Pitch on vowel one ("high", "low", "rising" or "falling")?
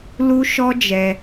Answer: high